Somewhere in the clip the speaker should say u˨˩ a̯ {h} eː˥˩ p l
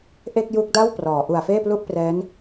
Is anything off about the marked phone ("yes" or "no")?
yes